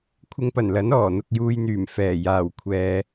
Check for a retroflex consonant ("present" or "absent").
absent